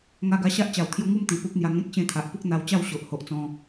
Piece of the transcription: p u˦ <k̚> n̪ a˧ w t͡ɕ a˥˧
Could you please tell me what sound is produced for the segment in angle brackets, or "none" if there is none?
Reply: k̚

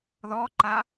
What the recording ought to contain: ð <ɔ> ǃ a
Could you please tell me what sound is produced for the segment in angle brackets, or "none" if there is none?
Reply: ɔ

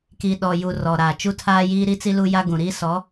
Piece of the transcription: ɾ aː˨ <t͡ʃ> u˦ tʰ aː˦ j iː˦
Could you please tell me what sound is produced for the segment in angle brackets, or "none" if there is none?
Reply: t͡ʃ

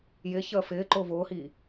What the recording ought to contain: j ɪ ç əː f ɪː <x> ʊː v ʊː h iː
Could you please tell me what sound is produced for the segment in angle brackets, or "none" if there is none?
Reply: ǃ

